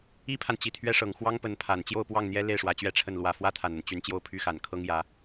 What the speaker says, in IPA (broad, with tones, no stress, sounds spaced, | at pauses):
i˥ pʰ a˨ n t͡ɕ i˨˩ t̪ʰ ɥ ɛ˥ ʂ ɤ˨˩ ŋ x w ɑ˥ ŋ p ə˧˥ n pʰ a˨˩ n t͡ɕ j o˥˧ ʊ̯ p w ɑ˥˩ ŋ n̪ j ɛ˥ l e˥˩ ɪ̯ ʂ w ä˧˥ t͡ɕ ɥ ɛ˥ ʈ͡ʂʰ ə˥˩ n l w ä˨˩ f w ä˥ t̪ʰ a˨˩ n ə˦ n t͡ɕ y˧˥ n t͡ɕ j o˥˩ ʊ̯ pʰ y˥ x a˨˩ n kʰ ɤ˥ ŋ j ä˧˥